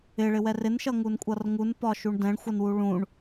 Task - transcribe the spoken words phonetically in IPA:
ɪ ɭ ɪ w ɛ r ɪ n ʃ ʌ ŋ u n kʷʼ ʌ r ŋ u n p ɒ ʃ u ɳ d ɛ̃ ɳ xʷ ʌ n w u ɭ ũ ɳ

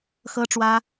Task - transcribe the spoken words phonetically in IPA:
x ɤ˥ ʈ͡ʂ w ä˥

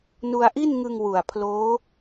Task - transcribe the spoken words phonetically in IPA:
n u˧ a̯ ʔ i˥˩ n ŋ ɯ˧ ŋ w u˨˩ a̯ pʰ l oː˦˥

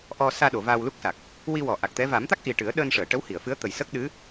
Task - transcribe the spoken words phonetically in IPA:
ʔ ɔ˧ s aː˧ ɗ o˨˩˨ v aː˧ w l u˦˥ k̚ s a˨˩ k̚ | w i˧ w ɔ˨˩˨ ʔ a˨˩ k̚ t̪ ɛ˧˥ v a˨˩˦ m t̪ a˦˥ k̚ ʔ i˨˩ ʈ ɨ˨˩˦ ə̯ ɗ əː˧ n ʂ əː˨˩˨ ʈ ə˧˥ w h i˨˩˨ ə̯ f ɨ˧˥ ə̯ t̪ ə˨˩ j s ə˦˥ k̚ ɗ ɨ˧˥

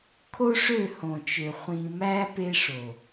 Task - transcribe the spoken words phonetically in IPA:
kʰ o˦ ʂ ø˦˨ h õ˨ t͡ʃ ø˨ χʷ ĩ˨ m æ˦ p e˦ ʂ o˨

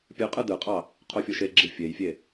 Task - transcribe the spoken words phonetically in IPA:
pʲ ɯ qʼ ɯ d ɯ qʼ ɑ | qʰ o fʲ o ʃ e ɡ͡ǁ i fʲ e j fʲ e

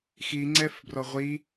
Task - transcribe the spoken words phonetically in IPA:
x i ŋ͡ǀ ɛ f b r ɔ ʁʷ i

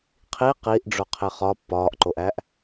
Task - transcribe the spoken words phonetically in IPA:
qʰ i q i ʔ ɖ͡ʐ o qʰ e χ ɒ pː ɒː ʔ ǃ o ʔ æ ʔ

